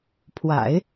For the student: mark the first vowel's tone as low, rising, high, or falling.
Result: low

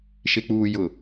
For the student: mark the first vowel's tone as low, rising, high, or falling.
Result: low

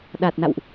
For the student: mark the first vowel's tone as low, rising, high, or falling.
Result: low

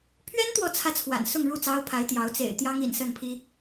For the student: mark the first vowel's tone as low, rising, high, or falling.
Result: high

